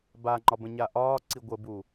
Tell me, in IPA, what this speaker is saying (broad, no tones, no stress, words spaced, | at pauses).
baŋ͡ǃɒ bə̃ɲaʔɒːǀi ɡʷəbu